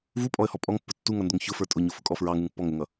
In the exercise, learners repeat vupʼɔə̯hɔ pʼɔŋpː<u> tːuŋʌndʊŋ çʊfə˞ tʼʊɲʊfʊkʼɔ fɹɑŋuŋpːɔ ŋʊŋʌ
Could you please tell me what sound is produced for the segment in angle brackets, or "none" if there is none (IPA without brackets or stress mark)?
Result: ʊ